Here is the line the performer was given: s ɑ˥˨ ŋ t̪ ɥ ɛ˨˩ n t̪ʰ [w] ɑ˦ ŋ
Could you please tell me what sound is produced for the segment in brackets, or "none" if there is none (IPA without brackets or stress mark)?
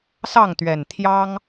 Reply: j